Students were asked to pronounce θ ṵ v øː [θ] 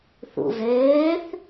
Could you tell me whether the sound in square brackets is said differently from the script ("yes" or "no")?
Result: no